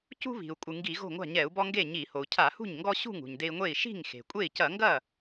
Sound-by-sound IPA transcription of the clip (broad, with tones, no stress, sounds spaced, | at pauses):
c ṳ˦ β i̤˩ u̯ kʷʼ ɨ˩ ŋ ɡ i˧˩˧ ɣ o̤˥˩ ŋʷ a̤˥˩ ɲ ɛ˧˩˧ u̯ b ɔ˦ ŋ ɡ e˥˩ ɲ i˧˩˧ h o˩ u̯ cʰ a˧˩˧ h ṳ˥˩ ɲ ŋ ɡ ɔ˦ ɕ ṳ˥˩ ŋ ṳ˩ ɲ d e˦ i̯ ŋʷ e˥˩ i̯ ʃ i̤˥˩ ŋ x e̤˩ kʷʼ e˥˩ i̯ c ɐ˧˩˧ ŋ ɡ ɐ˥˩